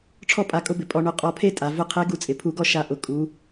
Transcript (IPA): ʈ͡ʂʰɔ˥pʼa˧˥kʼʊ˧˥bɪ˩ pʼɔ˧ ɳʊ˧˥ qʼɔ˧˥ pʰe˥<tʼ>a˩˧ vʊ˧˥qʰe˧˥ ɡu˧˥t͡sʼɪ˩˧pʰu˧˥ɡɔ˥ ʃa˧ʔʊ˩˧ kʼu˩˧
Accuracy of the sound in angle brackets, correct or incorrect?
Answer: correct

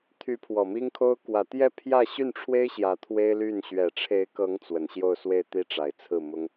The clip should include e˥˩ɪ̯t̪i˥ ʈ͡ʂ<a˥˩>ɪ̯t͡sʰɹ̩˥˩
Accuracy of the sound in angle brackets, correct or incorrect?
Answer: incorrect: a˨˩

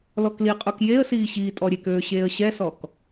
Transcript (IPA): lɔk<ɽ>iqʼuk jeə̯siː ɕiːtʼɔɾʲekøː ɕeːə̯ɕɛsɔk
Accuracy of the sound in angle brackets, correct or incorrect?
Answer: incorrect: l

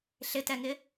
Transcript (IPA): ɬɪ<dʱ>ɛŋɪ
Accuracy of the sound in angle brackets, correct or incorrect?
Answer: incorrect: t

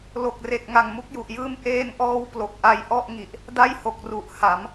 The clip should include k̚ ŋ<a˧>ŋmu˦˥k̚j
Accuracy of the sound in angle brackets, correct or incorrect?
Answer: incorrect: a˨˩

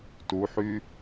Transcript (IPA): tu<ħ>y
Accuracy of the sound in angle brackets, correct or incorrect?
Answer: correct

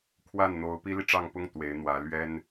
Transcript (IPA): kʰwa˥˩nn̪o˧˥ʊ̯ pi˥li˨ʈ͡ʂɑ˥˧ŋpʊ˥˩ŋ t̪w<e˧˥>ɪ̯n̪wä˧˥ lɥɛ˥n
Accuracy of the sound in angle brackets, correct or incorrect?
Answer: correct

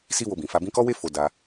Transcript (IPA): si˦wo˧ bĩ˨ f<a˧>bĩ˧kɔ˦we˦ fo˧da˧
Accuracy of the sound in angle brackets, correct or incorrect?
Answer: incorrect: a˨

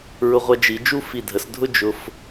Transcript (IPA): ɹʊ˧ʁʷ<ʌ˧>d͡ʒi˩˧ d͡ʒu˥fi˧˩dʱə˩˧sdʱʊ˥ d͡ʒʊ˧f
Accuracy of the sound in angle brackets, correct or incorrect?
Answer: correct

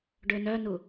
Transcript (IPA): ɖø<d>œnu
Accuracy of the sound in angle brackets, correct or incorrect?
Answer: incorrect: n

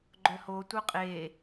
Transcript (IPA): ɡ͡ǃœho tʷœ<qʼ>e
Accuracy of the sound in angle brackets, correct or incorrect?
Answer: correct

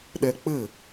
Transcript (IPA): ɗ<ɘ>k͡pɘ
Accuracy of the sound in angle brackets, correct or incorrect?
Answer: incorrect: ɛ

